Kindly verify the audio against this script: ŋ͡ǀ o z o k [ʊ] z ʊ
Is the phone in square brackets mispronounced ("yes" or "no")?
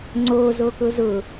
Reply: no